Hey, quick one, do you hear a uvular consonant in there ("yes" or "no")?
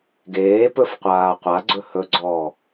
yes